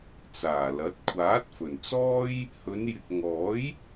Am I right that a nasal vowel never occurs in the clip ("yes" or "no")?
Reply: yes